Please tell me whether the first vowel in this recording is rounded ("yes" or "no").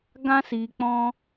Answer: no